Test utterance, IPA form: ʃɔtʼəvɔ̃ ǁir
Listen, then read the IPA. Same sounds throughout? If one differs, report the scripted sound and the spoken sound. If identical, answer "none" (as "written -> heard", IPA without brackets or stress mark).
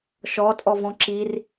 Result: ə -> ɔ